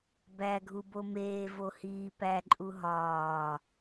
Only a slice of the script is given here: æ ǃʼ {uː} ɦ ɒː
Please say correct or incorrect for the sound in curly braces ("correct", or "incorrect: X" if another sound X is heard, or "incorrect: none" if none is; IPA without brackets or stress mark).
incorrect: u